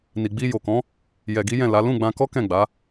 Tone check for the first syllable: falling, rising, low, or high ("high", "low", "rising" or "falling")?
low